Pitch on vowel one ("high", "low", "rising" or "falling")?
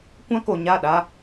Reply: high